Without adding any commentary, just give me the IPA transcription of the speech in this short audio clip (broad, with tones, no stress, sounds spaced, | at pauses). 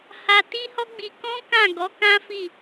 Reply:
h a˧ t i˦ h ɔ˦ ɡ͡b i˧ k ɔ̃˦ k ã˦˨ ɡ ɔ˨˦ k ã˦ f i˦˨